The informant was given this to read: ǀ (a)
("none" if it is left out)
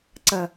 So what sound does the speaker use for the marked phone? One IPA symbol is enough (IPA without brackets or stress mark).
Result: ɐ